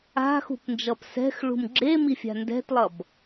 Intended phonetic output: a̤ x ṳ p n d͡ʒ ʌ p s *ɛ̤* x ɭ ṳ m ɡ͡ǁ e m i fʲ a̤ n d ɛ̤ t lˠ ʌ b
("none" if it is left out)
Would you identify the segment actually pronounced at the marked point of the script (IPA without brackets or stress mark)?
ɛ̤